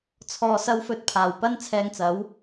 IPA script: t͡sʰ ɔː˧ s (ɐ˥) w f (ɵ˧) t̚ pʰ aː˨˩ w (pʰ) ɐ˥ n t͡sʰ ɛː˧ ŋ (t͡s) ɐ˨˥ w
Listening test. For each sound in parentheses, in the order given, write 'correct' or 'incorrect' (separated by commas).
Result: correct, correct, incorrect, correct